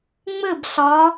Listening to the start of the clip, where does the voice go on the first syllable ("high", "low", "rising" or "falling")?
falling